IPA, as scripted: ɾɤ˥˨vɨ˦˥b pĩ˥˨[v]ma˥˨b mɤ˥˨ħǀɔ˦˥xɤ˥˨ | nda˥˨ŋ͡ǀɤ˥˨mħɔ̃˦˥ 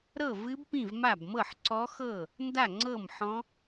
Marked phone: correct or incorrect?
correct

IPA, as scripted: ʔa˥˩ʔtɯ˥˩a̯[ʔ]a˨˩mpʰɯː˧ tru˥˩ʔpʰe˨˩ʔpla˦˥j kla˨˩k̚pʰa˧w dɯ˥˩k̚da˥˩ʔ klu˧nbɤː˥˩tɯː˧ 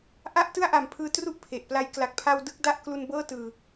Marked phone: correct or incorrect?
correct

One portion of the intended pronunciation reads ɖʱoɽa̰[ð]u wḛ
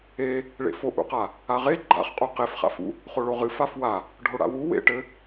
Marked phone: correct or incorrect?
incorrect: w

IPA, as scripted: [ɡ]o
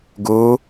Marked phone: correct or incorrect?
correct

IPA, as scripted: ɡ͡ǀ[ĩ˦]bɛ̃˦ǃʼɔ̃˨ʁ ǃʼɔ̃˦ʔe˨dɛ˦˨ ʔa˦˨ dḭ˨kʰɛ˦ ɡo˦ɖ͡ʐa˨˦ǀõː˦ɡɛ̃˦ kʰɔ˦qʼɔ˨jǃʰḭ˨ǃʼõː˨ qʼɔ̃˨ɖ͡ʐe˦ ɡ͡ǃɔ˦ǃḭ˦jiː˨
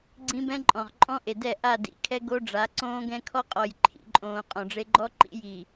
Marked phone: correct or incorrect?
correct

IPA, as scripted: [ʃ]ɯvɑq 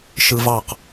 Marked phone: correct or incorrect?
correct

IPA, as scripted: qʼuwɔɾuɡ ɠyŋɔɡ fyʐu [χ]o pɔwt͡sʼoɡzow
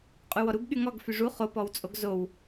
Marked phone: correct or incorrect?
correct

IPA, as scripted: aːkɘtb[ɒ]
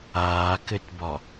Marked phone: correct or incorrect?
correct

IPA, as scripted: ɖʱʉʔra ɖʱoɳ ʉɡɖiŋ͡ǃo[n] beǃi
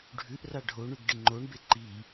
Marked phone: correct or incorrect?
incorrect: ɳ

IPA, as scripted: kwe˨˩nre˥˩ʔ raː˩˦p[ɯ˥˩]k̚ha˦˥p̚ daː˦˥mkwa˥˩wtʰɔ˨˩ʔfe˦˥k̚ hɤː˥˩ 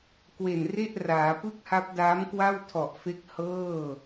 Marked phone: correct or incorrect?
correct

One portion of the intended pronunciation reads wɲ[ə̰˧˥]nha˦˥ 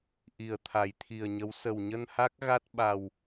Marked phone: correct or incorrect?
incorrect: ə˧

